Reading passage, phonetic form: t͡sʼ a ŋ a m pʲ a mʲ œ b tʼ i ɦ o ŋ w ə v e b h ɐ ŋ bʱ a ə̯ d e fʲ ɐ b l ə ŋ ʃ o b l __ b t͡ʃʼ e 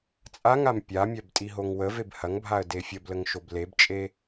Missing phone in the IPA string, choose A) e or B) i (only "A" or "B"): A